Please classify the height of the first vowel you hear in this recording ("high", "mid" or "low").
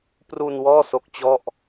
high